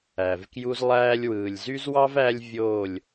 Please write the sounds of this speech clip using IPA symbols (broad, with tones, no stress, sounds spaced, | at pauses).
æ˨ v k j u˦ z lˠ æː˦ lʲ w ɯː˨ lʲ z y˦ z w ɑ˦ v æ˦ lʲ vʲ oː˦˨ lʲ